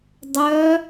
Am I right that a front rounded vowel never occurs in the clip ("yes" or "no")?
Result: no